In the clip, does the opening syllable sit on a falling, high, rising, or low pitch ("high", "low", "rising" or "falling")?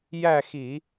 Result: falling